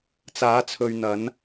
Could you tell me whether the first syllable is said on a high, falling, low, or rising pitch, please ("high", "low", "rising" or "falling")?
rising